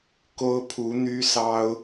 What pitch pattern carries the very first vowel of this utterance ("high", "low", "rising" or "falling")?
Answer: high